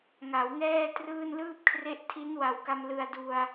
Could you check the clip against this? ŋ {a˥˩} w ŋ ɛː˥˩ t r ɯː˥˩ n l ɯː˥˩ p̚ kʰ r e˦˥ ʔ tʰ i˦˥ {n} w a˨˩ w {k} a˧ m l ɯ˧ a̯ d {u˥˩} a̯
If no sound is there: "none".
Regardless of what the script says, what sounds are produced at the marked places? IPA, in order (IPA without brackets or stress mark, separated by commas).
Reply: a˩˦, n, k, u˧